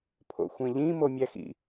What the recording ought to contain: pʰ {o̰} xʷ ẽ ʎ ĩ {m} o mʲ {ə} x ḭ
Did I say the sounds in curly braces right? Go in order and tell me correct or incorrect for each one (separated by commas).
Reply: correct, correct, incorrect